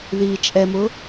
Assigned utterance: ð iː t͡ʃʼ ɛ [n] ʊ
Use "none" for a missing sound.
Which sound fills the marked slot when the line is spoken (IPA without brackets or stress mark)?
m